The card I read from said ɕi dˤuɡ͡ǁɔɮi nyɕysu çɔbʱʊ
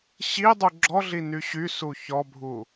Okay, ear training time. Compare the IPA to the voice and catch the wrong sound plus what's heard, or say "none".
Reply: ʊ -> u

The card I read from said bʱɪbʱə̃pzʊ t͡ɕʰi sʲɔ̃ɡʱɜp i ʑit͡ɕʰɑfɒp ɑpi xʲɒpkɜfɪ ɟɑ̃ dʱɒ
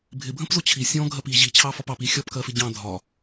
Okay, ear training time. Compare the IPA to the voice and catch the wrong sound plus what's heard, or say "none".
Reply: none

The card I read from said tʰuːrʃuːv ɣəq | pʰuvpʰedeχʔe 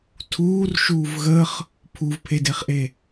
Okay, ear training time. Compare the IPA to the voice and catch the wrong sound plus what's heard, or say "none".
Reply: q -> χ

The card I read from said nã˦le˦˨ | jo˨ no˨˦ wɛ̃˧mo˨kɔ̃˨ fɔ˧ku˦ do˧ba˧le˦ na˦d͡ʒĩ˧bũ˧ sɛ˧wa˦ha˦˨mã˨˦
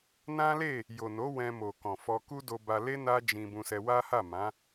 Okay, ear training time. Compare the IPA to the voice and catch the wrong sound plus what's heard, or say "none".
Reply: none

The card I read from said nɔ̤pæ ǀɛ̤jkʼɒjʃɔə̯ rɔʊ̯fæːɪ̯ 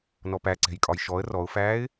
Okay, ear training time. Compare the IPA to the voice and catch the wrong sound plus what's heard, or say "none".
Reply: ɔ̤ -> ɔ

